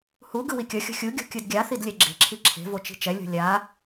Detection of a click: present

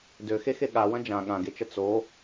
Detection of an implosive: present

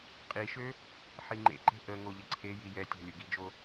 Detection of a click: present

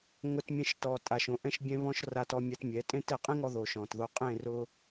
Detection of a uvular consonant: present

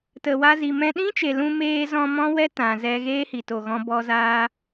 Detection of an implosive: present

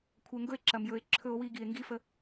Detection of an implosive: absent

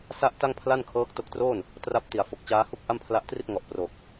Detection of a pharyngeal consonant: absent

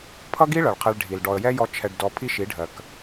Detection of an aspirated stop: present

